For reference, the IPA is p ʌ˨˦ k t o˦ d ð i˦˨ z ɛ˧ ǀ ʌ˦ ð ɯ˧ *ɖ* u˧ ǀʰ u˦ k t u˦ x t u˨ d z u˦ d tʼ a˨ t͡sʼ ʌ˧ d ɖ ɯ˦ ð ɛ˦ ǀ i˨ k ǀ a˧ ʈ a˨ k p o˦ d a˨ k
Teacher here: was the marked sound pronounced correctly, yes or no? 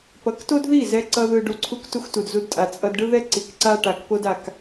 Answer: yes